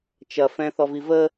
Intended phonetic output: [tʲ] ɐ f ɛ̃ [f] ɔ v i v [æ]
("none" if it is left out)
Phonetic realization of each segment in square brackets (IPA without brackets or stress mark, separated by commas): t͡ʃ, θ, ə